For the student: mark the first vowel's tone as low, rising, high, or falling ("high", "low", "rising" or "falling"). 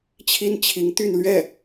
high